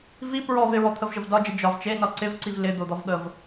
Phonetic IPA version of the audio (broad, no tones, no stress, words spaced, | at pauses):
vi pɹɔv ɪɹɔt̪ʰəvʒəv dɒd͡ʒə d͡ʒɒv t͡ʃenɒ ǀɪvǀiv lɪd̪od̪ɒvɠəv